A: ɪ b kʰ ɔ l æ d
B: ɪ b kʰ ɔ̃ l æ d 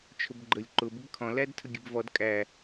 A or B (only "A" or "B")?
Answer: B